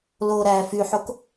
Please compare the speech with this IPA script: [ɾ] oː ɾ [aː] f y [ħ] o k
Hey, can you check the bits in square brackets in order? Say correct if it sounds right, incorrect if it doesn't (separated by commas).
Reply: incorrect, incorrect, correct